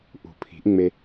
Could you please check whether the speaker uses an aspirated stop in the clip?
yes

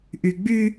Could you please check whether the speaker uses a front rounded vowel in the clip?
yes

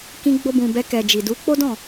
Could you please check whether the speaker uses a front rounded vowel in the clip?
no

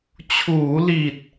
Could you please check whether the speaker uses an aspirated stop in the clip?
yes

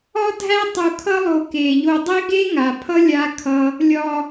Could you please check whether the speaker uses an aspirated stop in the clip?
yes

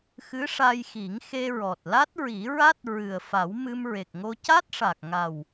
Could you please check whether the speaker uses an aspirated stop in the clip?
no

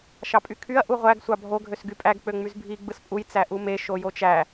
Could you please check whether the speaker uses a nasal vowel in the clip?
no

